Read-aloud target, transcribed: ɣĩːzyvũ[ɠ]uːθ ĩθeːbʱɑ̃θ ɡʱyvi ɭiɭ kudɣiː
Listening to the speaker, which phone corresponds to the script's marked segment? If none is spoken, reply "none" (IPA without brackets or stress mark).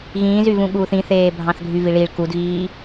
ɠ